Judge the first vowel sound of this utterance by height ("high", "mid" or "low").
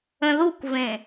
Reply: mid